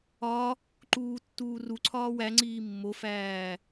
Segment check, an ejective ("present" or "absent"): absent